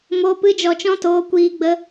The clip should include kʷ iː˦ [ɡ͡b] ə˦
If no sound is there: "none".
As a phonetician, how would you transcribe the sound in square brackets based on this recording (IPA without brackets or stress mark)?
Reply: ɡ͡b